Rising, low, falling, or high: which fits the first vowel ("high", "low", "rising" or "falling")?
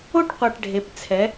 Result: high